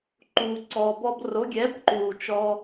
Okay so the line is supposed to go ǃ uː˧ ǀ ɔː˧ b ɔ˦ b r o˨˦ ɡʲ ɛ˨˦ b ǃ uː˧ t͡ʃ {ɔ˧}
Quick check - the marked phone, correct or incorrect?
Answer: incorrect